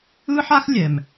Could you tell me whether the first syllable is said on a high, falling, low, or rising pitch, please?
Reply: high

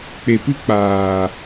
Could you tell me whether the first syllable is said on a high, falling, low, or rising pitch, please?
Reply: low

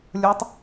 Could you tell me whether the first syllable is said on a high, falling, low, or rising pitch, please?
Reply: rising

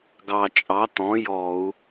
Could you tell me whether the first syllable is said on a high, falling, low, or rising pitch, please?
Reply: low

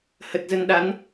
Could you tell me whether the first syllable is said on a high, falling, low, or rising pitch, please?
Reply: low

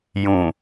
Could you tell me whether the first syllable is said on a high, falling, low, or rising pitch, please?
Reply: low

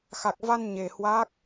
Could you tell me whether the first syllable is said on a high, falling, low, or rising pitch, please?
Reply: low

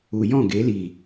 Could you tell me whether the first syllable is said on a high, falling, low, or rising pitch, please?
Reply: low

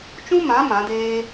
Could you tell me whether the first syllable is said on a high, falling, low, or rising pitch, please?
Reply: high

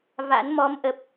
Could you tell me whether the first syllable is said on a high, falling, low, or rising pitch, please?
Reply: rising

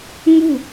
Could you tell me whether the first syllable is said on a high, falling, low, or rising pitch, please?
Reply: falling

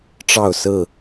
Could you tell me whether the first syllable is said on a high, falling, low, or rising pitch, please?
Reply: falling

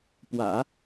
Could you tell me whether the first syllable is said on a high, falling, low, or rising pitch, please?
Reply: low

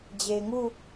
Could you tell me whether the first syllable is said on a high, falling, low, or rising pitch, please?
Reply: low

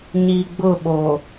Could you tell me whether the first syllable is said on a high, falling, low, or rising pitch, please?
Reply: low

